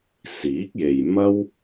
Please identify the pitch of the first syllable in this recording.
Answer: rising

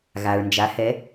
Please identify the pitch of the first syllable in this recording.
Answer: low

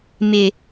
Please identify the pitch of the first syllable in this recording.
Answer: high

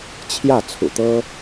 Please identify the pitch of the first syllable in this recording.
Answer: falling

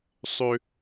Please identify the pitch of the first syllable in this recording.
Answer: high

